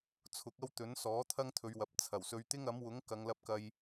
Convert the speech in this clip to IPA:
t͡sʰ ʊ˨˥ k̚ ɐ˥ w t̪ ɵ˨˥ n s ɔː˨˥ t̪ʰ ɐ˥ ŋ t̪ʰ ɵ˨˧ ɥ w ɐ˨ p̚ t͡sʰ ɐ˨˩ w s ɵ˨ ɥ t̪ ɪ˥ ŋ ɐ˨˥ m w ʊ˨˥ ŋ k ɐ˨˧ ŋ l ɐ˧ p̚ k ɐ˧ j

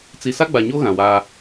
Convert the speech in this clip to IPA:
t͡s i˨ s a˦ ɡ͡b a˨ ɲ o˦ ɣ ã˨ w aː˦

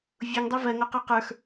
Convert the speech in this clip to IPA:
vʲ u ŋ dˤ e v ɜ ŋ o q ə˞ q ə˞ x

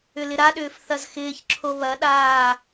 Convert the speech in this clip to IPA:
ʏ l ɪ ɾ a ɗ ʏː f θ ɐ z x ɪː ç ǁʰ o β ɐ ɗ aː

